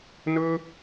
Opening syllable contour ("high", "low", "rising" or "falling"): high